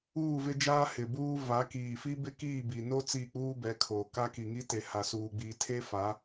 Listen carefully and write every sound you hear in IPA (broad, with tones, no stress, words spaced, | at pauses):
uː˦˨vɪ˦d͡ʒaː˦ hɪ˨buː˦ va˨˦kiː˨fi˦ bɪ˦kiː˦˨bi˨no˦ t͡si˦˨k͡puː˦bɛ˨˦kʰoː˨ ka˦ki˨ŋi˦te˨ ha˨suː˨ ɡ͡biː˦ tʰe˦fa˨˦